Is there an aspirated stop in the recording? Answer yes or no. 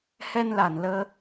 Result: no